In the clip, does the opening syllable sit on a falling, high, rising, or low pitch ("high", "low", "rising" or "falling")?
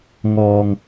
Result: low